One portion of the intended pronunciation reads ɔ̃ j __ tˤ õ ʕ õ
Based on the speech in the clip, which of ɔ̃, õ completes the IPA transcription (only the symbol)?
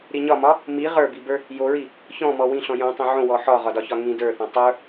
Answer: õ